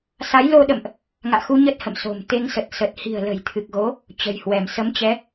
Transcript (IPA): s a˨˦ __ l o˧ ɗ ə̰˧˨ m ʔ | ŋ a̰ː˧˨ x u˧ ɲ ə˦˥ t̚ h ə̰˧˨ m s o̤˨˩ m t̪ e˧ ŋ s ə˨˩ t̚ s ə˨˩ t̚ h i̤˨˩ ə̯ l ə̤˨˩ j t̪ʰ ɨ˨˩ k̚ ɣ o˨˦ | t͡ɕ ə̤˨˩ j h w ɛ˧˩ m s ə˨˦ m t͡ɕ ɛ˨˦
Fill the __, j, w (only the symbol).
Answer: j